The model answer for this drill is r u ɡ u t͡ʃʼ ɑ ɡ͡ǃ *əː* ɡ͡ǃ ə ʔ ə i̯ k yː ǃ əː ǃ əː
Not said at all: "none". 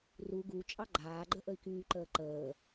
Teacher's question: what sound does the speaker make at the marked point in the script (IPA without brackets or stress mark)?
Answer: aː